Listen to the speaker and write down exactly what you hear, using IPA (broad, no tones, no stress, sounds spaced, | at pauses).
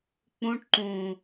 k͡p ũ ʈ ǃ ũ